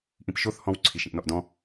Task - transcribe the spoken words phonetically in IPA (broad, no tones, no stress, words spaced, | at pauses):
ʔĩpʃoθ hɔ̃w ǀʰiʃĩʔnɔʔdɔ̃